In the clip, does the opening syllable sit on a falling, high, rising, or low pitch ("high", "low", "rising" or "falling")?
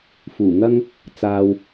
low